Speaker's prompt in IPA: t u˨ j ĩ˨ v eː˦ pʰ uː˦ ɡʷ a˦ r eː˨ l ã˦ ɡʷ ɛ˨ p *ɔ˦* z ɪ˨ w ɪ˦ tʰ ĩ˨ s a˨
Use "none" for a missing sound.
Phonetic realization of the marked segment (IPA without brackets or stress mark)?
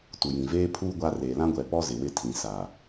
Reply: ɔ˦